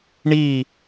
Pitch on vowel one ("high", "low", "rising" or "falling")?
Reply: falling